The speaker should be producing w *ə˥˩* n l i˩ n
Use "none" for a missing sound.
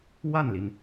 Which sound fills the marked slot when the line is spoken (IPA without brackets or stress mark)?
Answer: a˥˩